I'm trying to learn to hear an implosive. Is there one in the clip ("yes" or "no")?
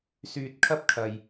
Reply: no